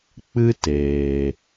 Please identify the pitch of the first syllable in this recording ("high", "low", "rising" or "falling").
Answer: high